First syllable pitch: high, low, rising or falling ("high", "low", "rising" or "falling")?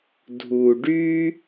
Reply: low